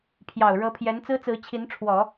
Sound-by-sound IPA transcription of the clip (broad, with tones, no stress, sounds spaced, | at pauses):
pʰ j ɑ˨˩ ʊ̯ ɻ ɤ˧˥ pʰ j ɛ˧˥ n t͡s ɹ̩˥ t͡s ɹ̩˧˥ t͡ɕʰ i˧˥ n ʈ͡ʂʰ w ɔ˨˩˦